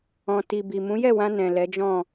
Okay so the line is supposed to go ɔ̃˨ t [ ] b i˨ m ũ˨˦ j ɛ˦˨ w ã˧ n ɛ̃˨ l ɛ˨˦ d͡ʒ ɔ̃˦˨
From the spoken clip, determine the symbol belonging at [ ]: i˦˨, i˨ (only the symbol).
i˨